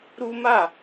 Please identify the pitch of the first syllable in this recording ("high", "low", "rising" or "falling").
high